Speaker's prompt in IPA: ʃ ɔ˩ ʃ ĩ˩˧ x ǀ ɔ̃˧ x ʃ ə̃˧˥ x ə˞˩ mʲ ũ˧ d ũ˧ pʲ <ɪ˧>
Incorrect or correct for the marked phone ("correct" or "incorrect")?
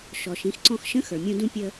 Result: incorrect